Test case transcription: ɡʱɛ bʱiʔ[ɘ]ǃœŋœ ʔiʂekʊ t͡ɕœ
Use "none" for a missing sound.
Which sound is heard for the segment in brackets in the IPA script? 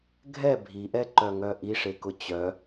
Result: ɛ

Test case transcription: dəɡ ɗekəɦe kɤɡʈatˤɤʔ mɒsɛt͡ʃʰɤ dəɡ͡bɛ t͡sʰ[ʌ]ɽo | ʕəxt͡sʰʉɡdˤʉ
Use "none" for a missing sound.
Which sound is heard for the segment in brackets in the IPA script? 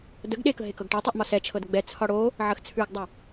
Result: ɒ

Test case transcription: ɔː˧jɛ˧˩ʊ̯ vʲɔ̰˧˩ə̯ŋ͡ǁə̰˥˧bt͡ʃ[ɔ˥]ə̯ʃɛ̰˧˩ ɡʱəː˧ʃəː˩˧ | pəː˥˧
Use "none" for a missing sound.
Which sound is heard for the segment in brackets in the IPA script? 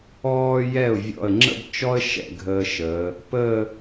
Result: ɔ˥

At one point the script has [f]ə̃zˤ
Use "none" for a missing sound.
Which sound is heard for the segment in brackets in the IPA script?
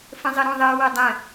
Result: f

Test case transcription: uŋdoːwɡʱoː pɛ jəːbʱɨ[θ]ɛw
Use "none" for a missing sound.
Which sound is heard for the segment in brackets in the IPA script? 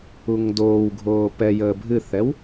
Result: θ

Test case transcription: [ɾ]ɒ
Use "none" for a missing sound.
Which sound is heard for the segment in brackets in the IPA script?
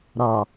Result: ɾ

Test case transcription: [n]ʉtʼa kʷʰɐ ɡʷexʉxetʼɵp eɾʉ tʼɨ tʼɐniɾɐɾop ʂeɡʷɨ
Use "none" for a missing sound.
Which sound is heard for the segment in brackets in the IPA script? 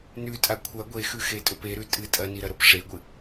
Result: n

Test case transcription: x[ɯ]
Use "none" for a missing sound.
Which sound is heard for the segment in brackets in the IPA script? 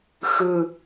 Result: ɯ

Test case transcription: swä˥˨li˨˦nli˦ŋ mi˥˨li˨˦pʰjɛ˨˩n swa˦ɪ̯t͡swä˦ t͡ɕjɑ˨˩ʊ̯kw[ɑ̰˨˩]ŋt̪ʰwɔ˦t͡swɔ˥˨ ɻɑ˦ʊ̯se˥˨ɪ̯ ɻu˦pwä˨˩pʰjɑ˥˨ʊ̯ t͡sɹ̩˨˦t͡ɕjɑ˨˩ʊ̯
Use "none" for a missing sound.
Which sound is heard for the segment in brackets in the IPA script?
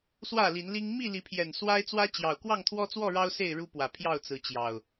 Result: ɑ˥˨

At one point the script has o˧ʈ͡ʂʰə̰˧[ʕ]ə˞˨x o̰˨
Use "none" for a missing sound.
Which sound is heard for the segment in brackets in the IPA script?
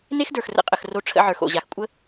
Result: ʕ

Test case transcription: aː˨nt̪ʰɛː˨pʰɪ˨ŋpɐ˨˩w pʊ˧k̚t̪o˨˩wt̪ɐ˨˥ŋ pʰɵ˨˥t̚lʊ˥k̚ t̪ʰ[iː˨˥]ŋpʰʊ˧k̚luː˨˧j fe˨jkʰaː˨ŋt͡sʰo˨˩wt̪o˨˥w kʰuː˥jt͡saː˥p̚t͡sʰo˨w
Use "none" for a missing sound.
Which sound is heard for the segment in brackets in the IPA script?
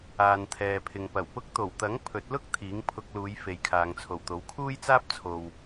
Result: iː˨˥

